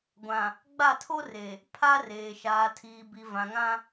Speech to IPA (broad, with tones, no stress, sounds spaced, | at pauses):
ɡʷ ã˨ | ɡ͡b a˦˨ tʰ o˦ r e˨ | pʰ a˦ r eː˨ ʃ aː˨ tʰ iː˨ b i˨ v ã˨ ŋ ã˦